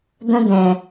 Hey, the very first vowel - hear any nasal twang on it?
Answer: yes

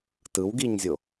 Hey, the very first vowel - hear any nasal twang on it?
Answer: no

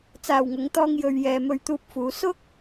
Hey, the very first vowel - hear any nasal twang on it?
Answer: no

